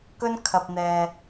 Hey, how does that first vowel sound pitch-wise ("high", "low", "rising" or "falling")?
high